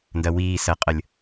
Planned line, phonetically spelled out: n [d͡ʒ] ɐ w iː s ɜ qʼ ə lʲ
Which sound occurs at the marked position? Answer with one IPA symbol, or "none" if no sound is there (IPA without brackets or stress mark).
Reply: d